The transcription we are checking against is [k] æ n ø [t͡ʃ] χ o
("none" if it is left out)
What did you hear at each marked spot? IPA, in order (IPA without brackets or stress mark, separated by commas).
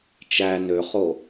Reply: t͡ʃ, none